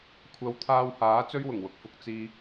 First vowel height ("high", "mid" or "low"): low